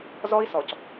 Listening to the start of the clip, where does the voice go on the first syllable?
high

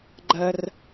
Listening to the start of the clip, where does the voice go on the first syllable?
high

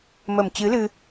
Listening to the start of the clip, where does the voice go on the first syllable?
low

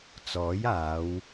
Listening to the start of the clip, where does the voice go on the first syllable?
rising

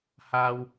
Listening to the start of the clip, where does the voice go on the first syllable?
high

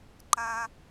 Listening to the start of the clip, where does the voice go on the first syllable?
low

